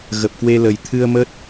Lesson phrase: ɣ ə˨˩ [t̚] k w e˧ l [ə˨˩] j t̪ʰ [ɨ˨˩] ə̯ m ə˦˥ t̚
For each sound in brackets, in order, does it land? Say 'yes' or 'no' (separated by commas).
no, yes, no